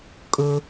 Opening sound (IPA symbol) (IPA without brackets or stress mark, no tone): kʼ